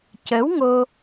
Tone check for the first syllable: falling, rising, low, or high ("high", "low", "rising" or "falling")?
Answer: rising